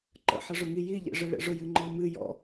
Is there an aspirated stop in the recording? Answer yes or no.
no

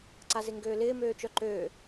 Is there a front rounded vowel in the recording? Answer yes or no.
yes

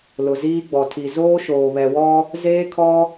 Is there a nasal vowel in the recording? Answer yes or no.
no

